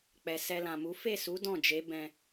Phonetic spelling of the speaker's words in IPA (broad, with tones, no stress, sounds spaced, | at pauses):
k͡p ɛ˨ s ɛ˧ l ã˨ m u˨˦ f e˦˨ s u˨˦ d ɔ̃˦˨ d͡ʒ e˨˦ b ɛ̃˧